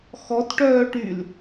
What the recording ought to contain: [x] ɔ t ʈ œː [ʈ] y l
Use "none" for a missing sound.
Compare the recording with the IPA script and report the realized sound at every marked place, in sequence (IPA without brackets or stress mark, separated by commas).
x, ʈ